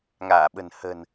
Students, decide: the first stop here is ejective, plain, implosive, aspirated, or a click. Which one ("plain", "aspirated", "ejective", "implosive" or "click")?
implosive